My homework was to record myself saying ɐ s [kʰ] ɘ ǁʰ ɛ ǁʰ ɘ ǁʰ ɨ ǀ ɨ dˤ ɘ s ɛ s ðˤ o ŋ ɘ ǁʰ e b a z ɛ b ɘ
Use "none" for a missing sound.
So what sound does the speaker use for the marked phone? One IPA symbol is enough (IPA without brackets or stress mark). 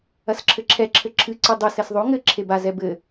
ǁʰ